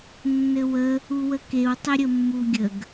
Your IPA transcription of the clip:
nː ɘ w ə | u w ə k e w tˤ ə ɾʲ ə mː u ɡʲ ə ɡ

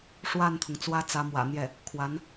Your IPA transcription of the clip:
ʂ w a˥˩ n t̪ʰ ʊ˩ ŋ t͡s w ä˥ t͡s ä˧˥ m w ä̰˨˩ n̪ j ɛ˥˩ | kʰ w a˧˥ n

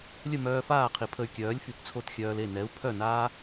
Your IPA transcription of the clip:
lʲ ə˥˩ m œː˧ f aː˥˩ qʰ i˩ pʰ ə˧ y̯ kʲ œː˩˥ lʲ f y˩ t t͡sʰ o˥˩ t xʲ œː˧ l e˥˩ n ɛ˩˥ u̯ pʰ œ˥˩ n aː˥

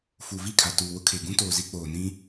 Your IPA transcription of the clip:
f u˨ v i˦˨ kʰ a˨ t uː˨ w ʊ˦ kʰ e˨ ɡ ũ˦ t oː˨ z i˦ k͡p oː˨ n ĩ˦

